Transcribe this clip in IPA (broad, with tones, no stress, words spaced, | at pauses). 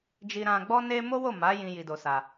d͡ʒi˧ɾã˧ɡ͡bɔ˦ne˦ mo˦wo˦˨ma˨˦ jĩ˦ji˧do˧sa˧